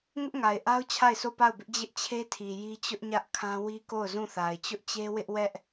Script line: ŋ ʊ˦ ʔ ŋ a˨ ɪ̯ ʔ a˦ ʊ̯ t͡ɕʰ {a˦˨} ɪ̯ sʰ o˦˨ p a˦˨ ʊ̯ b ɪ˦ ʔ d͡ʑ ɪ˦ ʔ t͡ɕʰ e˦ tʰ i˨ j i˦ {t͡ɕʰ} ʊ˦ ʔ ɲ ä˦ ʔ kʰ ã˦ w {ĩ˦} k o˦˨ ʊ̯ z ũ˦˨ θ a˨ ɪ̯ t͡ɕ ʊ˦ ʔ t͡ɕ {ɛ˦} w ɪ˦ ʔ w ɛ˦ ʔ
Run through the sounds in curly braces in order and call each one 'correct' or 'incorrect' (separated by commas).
correct, incorrect, incorrect, incorrect